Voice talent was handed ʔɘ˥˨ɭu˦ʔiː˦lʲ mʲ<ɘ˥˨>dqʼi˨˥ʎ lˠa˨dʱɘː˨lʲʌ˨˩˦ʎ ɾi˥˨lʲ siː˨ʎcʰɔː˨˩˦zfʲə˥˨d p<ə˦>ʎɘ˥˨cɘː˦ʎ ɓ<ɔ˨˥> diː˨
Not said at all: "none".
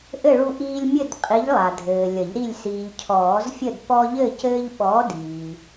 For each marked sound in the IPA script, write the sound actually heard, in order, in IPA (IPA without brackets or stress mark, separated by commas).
ɘ˥˨, ɔ˦, ɔː˨˥